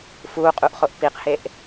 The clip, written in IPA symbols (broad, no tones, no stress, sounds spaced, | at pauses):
f uː qʼ u ʔ χ o ʔ p i q h e ʔ